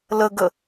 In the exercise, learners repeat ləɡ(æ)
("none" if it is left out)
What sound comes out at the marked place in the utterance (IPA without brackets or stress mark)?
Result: ə